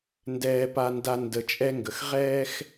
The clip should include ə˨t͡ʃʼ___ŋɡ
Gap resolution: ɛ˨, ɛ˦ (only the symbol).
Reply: ɛ˦